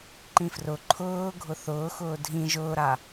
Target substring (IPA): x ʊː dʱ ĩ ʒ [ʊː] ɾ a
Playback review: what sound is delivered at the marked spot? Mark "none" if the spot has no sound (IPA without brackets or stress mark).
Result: ʊː